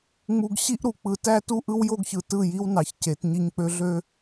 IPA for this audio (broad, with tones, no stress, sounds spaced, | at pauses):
ŋ͡m u˨ ɡ ɕ i˦ ʔ ɾ u˨ k͡p ɯ˨ t æ˦ t u˦ ʔ ɯ˦ w j o˦ ɡ ç ɯ˨ t ɯ˦˨ j i˦ w n ɑ˨ ç c e˨˦ t ɲ i˦ ɲ k͡p ø˦ ɮ ø˦